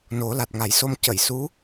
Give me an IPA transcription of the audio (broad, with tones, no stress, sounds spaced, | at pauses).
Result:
n o˨˩˦ l a˨˩ t̚ ŋ a˨˩˦ j s o˧ m c ə˨˩˨ j s u˧˥